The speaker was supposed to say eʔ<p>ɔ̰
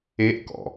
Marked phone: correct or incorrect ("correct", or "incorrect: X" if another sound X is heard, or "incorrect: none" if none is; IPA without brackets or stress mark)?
incorrect: k